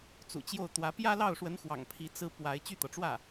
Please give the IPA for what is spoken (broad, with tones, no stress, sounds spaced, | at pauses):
t͡s ṵ˨˩ t͡ɕ j o˥˩ ʊ̯ t̪ w ä˧˥ p j ä˥ l ɑ˥˩ ʊ̯ ʂ w ə˧˥ n x w ɑ̰˨˩ ŋ pʰ i˧˥ t͡s ɹ̩˥ p w a˧˥ ɪ̯ t͡ɕ y˥˩ t̪ ɤ˩ ʈ͡ʂ w ä˥˩